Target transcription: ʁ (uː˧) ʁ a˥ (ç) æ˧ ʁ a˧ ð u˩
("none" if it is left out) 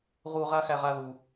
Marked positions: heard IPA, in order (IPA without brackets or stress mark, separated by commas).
uː˧, x